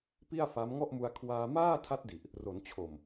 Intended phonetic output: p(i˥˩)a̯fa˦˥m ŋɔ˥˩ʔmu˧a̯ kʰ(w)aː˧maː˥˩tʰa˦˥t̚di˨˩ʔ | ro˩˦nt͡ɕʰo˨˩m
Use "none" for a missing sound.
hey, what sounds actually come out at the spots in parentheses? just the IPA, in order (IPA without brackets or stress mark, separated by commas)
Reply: i˥˩, w